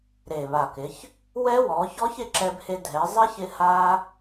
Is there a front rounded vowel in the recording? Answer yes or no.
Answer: no